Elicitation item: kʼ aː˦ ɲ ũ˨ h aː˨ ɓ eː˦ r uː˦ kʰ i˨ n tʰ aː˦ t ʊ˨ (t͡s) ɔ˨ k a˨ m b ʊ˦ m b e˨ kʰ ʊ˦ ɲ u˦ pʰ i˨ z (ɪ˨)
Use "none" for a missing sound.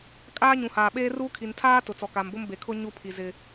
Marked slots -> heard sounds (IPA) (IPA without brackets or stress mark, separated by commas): t͡s, ɪ˨